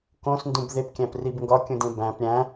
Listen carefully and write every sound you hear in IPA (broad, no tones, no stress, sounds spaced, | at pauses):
k õ s n d ũ b ð e p kʲ æ̃ p r i b ŋ ɡ ɒ kʲ ũ d ẽ b æ̃ p ɾʲ æ̃